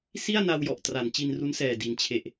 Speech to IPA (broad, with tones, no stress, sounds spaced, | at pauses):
s i˥˩ a̯ n a˧ w j ɔ˨˩ ʔ t r a˩˦ n t͡ɕ i˧ n r u˦˥ n s ɛː˨˩ d i˨˩ n t͡ɕʰ e˨˩ ʔ